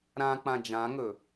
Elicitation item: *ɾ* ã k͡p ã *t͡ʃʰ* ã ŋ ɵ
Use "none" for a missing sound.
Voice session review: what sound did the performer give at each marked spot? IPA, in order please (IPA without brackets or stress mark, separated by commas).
ɾ, d͡ʒ